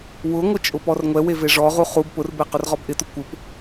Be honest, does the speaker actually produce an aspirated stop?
no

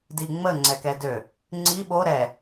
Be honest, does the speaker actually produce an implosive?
yes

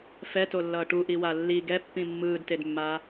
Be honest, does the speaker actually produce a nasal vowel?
yes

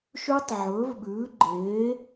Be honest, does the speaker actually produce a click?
yes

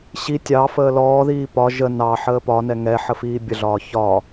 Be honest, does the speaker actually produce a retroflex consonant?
no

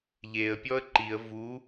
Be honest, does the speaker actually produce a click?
yes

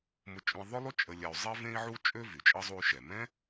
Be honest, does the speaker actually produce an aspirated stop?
no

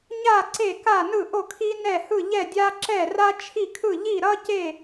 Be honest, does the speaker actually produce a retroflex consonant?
no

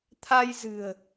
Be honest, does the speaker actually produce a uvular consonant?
no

